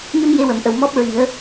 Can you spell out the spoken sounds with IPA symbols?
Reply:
ɲə˧m je˧wə˨˩˨mʔə˨˩w mɔ˦˥p̚ ɹi˨˩˦ə̯

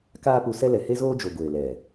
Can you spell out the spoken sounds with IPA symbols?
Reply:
kaː˦pu˧sɛ˦ lɛ˨he˦ zoː˦d͡ʒo˨ ɡʷeː˨lɛ˨

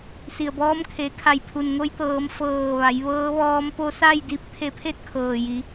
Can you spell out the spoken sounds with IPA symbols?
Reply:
si˩ə̯bɔː˧˥mkʰe˩˧kʰa˧˩j pʰu˩nŋo˧jt̪ɤː˩˧m fɤː˧˩ʋa˩˧jʋɤː˧˥ʋɔː˧˥m po˧sa˥˨jdi˧˥p̚ t̪ʰe˧pʰe˥˨t̚kʰɤː˩ji˩˧

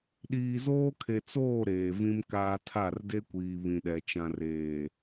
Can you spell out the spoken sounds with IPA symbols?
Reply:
ɗiː˨zoː˦kʰe˨t͡soː˦˨ ɾeː˨vĩ˦mkaː˦ tʰa˦˨rde˦kʷiː˨ βĩ˨ɗɛ˨ t͡ʃã˨reː˨

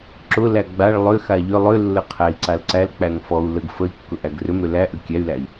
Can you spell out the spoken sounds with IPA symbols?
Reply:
ǁʊlæ ɡ͡baɭ lˠʏxa ʎʏ lˠʏlːə qʰæi̯ǀalǀælk͡pæŋ fɔu̯ ləɡ fəi̯kːʊ ʔæɡrʏmɾʏ læʔʏ kʲæy̯læi̯

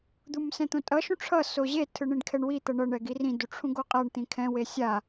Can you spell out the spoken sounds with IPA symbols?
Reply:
d̪umsɛ̃t̪õtʼʌ ʃũʈ͡ʂʰʌ soʑe tʰɯɳĩɖkʰɛɳwi t̪ʌɳʌ ɳɛɡirĩ duʈ͡ʂʰũɡoqʼaɳ t̪ĩkʰɛ̃ wesʲa

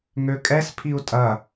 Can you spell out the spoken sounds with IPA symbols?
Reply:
ŋøkʼɛs pʰiu̯tʼɐ

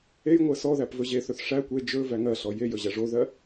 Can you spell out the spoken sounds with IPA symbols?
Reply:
ejŋʷɜ sɔ ðæpvɵʑeθɵθ ʂæ kʷe d͡ʒɵ væŋɜɬɔ jejɵ ʑæʐoðɜ

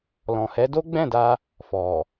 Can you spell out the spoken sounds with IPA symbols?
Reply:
lɔ̃˨hɛ˨˦do˦ ɡ͡bɛ̃˦˨da˧ | fɔ˨

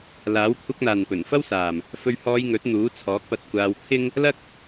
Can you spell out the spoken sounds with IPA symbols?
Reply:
laː˨˥w kʷʰɐ˧k̚n̪aː˨npɵ˨˩n fɐ˥wsaː˨m | fɵ˧ɥhɔː˧jŋɵ˨˥t̚ n̪uː˨˥t͡sʰɔː˨˥k̚pɐ˧t̚ kʷaː˧wt̪ʰɪ˥ŋ | lɐ˥k̚

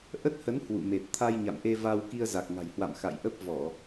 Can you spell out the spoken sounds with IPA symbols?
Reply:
ʔə˦˥t̚hə˨˦n hwṵ˧˨me˨˩t̚ t̪ʰa˧jɲa̰˧˨mʔe˧ va˧w ki˧ə̯za˨˩k̚ŋa̤˨˩jhwa̰˧˨m xa̰˧˨jʔə˦˥p̚ vɔ˧˩˨

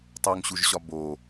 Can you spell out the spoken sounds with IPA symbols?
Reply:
tˤoŋɕuʒɕɒ bo

